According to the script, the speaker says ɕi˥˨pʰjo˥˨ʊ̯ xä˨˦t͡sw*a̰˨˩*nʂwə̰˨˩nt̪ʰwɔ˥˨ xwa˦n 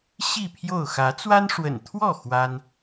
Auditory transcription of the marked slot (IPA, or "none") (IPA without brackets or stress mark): a˦